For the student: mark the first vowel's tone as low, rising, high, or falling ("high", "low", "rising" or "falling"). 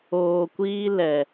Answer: low